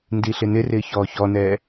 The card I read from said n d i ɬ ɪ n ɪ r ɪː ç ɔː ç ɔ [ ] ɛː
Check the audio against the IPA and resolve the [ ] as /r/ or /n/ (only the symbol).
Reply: n